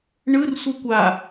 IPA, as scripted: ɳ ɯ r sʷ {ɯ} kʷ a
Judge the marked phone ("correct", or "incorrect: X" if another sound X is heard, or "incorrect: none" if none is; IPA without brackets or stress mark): correct